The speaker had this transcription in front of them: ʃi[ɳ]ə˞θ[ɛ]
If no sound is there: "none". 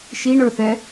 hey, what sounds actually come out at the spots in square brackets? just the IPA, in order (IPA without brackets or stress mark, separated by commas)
ɳ, ɛ